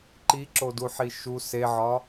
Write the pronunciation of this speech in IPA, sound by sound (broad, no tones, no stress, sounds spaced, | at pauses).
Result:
ǃ i ǁ o d u ħ i ʃ u s e ʕ ɒ